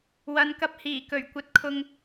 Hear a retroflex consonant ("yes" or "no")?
no